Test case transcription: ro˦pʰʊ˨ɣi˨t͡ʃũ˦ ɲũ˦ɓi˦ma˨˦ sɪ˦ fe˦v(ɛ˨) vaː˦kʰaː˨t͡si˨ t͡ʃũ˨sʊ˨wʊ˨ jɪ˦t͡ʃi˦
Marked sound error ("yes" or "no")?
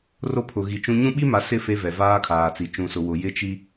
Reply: no